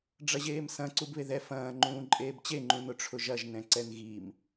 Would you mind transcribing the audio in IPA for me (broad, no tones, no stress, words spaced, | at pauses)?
ɖ͡ʐɐʑeːmsɐ̃ ǀubβeðɛ fɐ̃ː ŋ͡ǃũːǃʼeːbt͡ɕe ŋ͡ǃũnʊʈ͡ʂʰʊʒɐʒ nɛ̃ǀɛnɣim